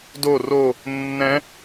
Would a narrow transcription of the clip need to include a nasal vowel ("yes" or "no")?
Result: yes